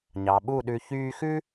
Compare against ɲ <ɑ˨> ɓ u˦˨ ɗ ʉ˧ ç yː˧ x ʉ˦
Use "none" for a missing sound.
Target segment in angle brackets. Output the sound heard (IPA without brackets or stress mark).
ɑ˨